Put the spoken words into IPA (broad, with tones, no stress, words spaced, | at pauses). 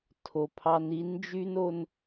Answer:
tʰo˨pʰɑ˦n i˨˦nd͡ʒy˦no˦n